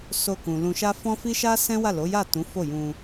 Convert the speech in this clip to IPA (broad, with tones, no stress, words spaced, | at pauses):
so˧kũ˨ lũ˧ʃa˦ fɔ̃˦fi˦ʃa˦ sɛ̃˦wa˦˨lo˨˦ja˦˨ tũ˨˦fo˦˨jũ˧